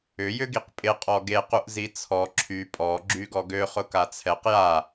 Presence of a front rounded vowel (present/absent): present